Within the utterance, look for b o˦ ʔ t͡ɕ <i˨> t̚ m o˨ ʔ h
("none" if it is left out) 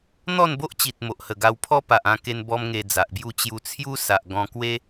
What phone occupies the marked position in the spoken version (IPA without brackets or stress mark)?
i˨